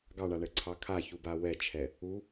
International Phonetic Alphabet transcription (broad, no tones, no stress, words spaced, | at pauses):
ɡɑɳaɳɛǀʰɑ kʰaçuba wɛt͡ʃʰɛ | u